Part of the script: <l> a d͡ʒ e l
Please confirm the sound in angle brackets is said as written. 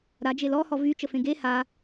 no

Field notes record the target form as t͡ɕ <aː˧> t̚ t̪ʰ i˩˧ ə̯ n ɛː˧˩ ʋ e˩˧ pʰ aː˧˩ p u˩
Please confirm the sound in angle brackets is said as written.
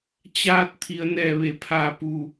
yes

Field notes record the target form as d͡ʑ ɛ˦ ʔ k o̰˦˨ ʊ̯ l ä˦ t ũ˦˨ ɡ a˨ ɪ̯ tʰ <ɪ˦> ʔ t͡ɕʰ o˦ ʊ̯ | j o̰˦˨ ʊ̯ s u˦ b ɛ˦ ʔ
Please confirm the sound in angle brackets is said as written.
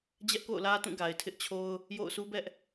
yes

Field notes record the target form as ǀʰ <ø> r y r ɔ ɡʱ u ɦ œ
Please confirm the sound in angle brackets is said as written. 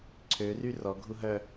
yes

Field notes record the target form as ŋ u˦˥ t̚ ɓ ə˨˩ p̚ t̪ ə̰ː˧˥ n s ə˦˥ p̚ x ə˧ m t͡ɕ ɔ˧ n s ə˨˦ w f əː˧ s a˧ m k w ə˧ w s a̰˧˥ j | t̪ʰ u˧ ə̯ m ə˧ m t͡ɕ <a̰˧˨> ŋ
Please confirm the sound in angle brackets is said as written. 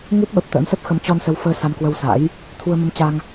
no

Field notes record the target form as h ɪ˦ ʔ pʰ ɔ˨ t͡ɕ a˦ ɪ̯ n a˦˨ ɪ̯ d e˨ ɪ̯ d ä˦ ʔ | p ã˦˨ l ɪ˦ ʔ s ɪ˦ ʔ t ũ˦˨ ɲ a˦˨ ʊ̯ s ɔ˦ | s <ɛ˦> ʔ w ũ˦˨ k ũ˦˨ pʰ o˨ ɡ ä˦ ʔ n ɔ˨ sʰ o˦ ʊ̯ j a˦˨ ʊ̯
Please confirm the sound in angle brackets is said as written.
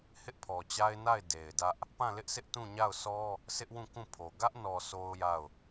no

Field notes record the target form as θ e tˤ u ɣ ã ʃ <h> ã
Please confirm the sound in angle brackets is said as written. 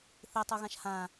yes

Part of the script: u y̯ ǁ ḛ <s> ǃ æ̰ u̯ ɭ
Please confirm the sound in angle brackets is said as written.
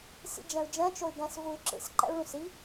yes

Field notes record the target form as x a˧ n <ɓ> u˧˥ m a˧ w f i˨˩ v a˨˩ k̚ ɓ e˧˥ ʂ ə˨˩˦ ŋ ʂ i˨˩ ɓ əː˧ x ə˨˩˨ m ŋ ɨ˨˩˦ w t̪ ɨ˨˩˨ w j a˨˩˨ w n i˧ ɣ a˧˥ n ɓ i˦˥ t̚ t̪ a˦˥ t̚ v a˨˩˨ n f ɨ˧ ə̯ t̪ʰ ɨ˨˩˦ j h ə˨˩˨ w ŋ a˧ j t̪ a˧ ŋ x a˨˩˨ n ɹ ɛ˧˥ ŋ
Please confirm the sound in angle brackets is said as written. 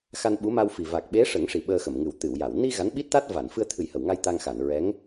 yes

